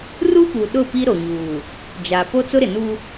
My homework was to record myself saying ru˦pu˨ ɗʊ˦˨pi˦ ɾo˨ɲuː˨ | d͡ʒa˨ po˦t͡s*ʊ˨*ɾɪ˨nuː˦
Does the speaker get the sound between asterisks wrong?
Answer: yes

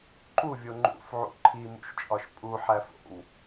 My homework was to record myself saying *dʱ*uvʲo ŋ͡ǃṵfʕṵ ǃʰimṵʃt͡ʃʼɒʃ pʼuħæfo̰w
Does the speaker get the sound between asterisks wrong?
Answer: yes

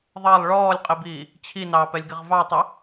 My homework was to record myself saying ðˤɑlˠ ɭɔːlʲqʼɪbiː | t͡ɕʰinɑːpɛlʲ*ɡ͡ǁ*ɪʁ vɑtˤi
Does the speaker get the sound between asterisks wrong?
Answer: yes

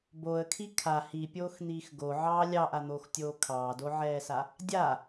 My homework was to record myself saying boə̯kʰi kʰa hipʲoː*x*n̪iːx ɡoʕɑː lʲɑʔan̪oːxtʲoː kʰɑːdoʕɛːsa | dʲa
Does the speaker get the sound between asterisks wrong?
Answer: no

